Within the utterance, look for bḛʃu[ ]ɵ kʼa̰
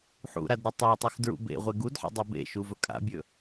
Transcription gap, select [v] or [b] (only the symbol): v